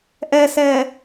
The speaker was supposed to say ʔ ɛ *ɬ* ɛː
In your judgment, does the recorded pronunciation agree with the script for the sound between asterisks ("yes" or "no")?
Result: no